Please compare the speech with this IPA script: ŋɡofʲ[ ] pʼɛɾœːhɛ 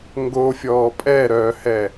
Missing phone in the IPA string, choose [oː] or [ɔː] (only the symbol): ɔː